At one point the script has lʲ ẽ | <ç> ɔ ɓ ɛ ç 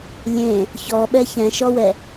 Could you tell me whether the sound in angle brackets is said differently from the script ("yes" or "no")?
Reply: no